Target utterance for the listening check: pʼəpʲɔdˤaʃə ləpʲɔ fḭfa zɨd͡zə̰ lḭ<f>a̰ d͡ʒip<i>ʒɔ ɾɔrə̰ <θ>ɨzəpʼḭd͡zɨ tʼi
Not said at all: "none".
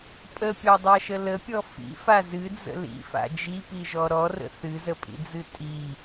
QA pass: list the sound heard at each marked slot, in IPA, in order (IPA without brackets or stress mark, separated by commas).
f, i, θ